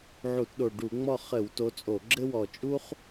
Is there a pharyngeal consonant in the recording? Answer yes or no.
yes